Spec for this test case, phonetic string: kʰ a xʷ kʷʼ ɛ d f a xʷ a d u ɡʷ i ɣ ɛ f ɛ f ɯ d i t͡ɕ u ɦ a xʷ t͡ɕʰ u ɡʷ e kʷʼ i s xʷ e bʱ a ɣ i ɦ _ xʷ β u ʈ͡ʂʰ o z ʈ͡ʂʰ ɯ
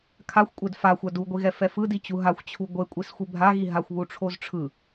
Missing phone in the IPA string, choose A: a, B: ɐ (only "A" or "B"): A